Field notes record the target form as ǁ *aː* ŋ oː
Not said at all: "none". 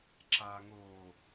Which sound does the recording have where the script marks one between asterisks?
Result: aː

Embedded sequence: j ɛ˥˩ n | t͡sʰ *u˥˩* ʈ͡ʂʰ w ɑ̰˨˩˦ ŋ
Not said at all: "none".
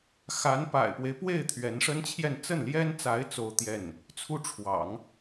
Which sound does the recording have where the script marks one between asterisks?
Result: u˥˩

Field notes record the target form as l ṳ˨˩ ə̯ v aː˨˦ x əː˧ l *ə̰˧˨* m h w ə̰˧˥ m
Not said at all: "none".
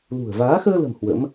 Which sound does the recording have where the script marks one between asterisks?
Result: ə̤˨˩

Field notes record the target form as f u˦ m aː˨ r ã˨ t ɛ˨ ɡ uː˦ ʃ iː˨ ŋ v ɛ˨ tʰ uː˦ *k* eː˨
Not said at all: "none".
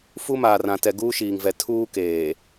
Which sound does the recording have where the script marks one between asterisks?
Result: k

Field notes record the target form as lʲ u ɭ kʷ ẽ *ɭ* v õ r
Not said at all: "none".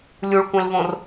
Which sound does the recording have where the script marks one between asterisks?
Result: l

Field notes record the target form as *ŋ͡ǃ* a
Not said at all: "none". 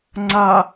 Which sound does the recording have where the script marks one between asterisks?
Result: ŋ͡ǀ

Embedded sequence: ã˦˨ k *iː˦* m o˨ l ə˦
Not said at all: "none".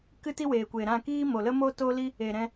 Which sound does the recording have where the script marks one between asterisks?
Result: iː˦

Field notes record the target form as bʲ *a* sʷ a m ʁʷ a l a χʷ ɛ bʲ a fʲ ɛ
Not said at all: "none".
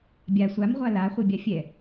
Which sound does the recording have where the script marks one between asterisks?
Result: a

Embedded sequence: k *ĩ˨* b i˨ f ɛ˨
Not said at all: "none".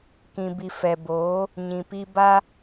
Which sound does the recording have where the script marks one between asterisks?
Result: ĩ˨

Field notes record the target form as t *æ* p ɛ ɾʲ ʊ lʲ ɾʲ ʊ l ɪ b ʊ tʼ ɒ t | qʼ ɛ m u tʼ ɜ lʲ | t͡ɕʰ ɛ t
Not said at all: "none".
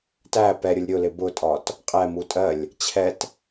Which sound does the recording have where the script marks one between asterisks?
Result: æ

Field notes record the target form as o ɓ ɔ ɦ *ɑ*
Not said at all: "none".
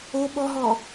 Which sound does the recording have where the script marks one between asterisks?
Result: ɔ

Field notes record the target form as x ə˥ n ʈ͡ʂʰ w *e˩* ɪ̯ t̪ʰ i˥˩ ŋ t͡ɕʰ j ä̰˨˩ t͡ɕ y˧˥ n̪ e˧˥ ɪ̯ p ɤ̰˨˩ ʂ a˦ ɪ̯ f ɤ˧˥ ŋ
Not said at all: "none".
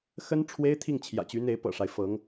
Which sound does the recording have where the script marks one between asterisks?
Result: e˥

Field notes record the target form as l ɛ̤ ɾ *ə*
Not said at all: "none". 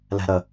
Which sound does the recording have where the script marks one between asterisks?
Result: ə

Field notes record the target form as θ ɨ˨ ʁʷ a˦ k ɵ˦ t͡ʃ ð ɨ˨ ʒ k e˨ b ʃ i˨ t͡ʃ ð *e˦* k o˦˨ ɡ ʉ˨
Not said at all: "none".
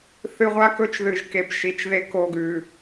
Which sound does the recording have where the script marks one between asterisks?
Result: e˦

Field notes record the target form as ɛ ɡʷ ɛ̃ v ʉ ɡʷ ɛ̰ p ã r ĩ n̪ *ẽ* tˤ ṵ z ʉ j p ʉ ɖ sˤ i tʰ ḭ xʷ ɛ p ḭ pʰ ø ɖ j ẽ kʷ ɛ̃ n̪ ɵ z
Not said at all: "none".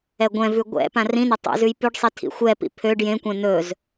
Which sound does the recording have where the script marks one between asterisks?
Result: e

